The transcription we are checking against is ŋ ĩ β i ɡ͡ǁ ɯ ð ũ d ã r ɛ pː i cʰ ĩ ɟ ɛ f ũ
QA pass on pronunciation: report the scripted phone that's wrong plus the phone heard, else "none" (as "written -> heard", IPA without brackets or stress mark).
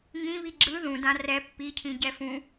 none